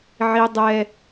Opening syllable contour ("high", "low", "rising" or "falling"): high